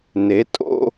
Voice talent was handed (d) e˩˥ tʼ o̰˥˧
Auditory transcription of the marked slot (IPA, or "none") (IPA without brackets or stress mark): n